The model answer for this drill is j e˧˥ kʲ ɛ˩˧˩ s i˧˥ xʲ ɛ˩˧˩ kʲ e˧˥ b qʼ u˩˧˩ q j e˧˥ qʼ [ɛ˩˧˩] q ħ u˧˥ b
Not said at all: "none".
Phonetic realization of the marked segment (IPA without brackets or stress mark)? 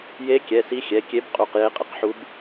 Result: ə˩˧˩